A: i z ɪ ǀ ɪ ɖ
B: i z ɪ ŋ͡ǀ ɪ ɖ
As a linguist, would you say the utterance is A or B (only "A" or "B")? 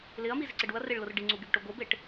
A